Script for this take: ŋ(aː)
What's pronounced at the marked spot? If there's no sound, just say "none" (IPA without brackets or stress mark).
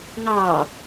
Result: ɑː